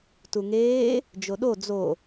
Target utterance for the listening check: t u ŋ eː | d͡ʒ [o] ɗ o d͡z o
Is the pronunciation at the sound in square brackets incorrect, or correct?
correct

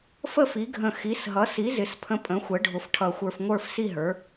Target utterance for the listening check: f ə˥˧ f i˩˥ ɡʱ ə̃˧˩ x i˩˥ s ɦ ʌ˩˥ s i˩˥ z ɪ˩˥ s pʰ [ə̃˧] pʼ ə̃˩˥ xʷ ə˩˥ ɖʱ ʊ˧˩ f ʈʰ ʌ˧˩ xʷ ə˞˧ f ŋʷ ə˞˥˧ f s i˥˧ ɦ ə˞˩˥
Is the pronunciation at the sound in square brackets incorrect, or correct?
correct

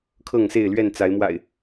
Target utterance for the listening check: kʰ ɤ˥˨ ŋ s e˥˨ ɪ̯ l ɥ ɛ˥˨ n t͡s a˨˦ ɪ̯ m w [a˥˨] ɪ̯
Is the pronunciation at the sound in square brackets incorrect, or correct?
incorrect: a̰˨˩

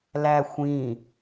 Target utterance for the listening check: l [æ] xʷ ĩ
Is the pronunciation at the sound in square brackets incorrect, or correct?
correct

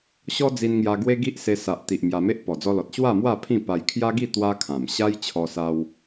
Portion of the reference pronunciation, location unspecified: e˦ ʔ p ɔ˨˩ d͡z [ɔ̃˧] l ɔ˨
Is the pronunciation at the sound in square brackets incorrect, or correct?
incorrect: ɔ˧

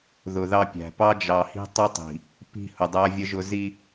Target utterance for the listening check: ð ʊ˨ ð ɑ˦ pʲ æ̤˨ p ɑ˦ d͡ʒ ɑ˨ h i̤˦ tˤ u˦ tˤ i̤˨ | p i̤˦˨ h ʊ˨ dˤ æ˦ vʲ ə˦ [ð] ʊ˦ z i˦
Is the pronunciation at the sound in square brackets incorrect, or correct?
incorrect: ʒ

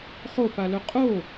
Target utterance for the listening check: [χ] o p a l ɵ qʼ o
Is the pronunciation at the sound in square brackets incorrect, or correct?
correct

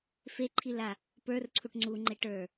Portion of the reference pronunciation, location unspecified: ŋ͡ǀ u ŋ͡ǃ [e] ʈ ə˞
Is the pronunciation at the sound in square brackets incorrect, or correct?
correct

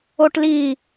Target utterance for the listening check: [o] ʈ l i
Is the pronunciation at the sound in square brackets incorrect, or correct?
correct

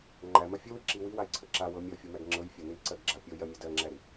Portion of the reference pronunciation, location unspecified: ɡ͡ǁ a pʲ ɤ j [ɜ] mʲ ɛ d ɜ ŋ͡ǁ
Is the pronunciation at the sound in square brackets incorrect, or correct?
correct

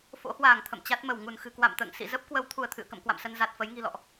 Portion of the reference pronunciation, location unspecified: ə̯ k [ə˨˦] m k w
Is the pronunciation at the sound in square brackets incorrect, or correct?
incorrect: ə̰˧˨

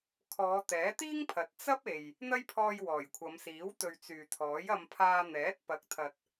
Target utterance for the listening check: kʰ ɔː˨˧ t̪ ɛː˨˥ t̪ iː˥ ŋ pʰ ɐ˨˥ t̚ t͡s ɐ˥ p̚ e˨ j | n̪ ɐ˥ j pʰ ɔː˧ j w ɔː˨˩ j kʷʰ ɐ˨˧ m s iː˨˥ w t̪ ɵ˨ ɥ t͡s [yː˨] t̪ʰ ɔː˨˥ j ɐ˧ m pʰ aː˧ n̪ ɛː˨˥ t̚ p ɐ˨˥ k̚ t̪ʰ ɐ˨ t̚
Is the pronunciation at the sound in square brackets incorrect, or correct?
correct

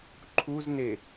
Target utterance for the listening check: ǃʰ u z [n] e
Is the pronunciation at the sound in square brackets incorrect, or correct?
correct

